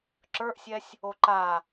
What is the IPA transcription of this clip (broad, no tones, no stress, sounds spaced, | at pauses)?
ǁ ə˞ ʔ sʲ ɛ sʲ | o ǃ a